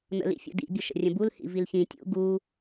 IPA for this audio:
n̪ ə̰ l ḭ fʲ ṵ d ḭ bʲ ʊ ʃ ə̰ rʲ ə̃ b u l h ḭ v i l ç ĩ tʲ ṵ ɡ u

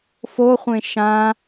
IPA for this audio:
f o χʷ ẽ ʃ ã

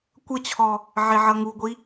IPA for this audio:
kʷ ʌ t͡ɕʰ ɔ | ʕ e ʕ ʌ ŋ u ɡʷ i

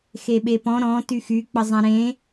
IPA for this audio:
x e ɓ e p ɔ̃ ɾ ɔ̃ t y x y k͡p ə zˤ ã ɾ ẽ

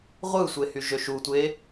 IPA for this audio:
ʁʷ ɯ sʷ e h y ʒ ø ʃ u tʷ e

